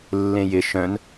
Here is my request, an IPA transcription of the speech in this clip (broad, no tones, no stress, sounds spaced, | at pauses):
lː ẽ j ɪ ʃ œ̃ n